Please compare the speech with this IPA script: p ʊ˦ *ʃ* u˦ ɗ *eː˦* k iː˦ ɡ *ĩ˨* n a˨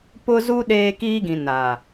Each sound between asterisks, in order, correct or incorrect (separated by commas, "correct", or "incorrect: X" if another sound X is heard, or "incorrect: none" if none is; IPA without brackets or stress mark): incorrect: z, correct, correct